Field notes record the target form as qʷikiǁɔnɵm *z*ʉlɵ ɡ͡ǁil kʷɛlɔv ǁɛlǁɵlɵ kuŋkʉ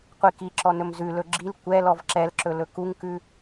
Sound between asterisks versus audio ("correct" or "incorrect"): correct